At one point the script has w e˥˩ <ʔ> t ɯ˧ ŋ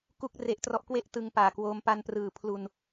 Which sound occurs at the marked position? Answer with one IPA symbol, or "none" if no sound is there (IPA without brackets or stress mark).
ʔ